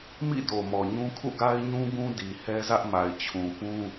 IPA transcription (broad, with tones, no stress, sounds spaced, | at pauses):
m ḭ˦˨ d o˨ m ɔ˨ ɲ ũ˦ kʰ ṵ˦˨ ɡ a˦ ɪ̯ ɲ ũ˦ ɡ ũ˦ d i˨ h ɛ˦ z ä˦ ʔ m a˨ ɪ̯ t͡ɕʰ ũ˨ p ũ˦